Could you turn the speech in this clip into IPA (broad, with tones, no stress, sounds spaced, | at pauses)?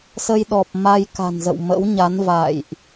s ə˧ j ɗ ɔ˨˩ p̚ m a˧ j k a̤˨˩ n z ə̰˧˨ w m ə̰˧˥ w ɲ a˨˦ n v a̰˧˨ j ʔ